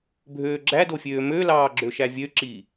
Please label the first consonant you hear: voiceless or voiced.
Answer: voiced